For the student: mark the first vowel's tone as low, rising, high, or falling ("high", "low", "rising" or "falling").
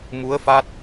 rising